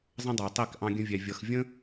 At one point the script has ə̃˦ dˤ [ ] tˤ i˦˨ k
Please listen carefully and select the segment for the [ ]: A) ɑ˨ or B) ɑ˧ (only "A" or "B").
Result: A